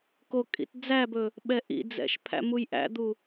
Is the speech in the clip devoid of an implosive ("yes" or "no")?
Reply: no